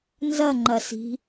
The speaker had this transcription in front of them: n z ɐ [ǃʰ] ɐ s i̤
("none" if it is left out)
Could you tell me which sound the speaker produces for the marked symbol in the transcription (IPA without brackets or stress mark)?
ŋ͡ǃ